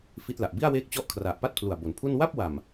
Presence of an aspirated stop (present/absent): present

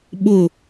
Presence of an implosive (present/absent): present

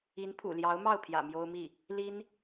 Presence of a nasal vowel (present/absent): absent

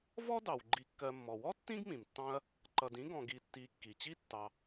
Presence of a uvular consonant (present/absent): absent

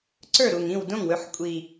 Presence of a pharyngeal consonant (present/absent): present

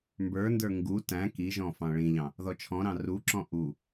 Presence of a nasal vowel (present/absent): present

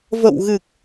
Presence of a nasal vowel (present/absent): absent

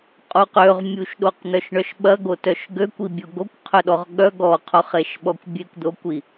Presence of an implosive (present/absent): present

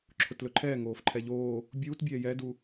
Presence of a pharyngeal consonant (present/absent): absent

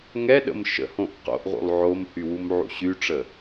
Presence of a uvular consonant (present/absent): present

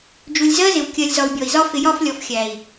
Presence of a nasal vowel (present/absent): absent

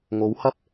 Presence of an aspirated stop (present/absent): absent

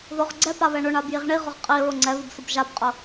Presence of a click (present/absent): present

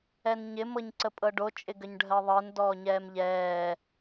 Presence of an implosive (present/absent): absent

